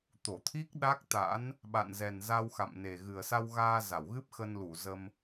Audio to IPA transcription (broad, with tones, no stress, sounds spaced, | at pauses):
t̪ o˧˩ t̪ʰ i˦˥ k̚ ɗ a˦˥ k̚ t̪ a̰˧˥ n | ɓ a̰˧˨ n z ɛ˨˩ n z a˧ w x a̰˧˨ m n e˨˩ ɣ ɨ˨˩ ə̯ s a˧ w ɣ aː˧ z a˧˩ w ɣ ɨ˦˥ p̚ x ə˧ n l u˧˩ z ə˧ m